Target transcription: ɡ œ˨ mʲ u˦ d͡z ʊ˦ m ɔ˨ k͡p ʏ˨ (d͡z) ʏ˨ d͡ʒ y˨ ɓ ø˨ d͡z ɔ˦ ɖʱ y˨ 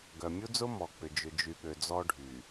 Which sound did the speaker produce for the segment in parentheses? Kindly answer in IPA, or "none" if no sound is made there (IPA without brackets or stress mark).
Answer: d͡ʒ